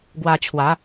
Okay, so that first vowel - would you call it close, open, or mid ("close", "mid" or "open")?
open